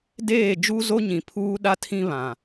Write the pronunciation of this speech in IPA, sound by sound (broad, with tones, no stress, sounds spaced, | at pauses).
d eː˦˨ d͡ʒ u˦ z o˦ ɲ ĩ˨ pʰ uː˦ ɗ a˦ tʰ ĩ˦ β ã˨